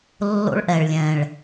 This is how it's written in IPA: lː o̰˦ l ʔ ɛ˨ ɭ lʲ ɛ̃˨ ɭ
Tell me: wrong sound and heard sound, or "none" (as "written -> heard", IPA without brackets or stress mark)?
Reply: l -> ɭ